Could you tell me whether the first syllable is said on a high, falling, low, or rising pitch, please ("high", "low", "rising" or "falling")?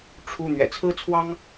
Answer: high